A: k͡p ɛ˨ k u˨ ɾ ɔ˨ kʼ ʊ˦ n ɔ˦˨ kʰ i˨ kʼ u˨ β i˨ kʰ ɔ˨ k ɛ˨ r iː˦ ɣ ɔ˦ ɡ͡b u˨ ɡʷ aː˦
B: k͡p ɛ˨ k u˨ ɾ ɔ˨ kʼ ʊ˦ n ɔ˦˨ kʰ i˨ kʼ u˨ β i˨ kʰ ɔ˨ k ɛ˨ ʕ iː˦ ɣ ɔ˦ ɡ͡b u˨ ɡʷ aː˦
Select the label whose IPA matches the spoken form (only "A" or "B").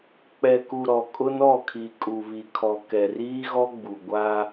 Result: A